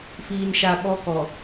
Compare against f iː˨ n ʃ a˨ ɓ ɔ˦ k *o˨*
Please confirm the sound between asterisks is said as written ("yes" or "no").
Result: no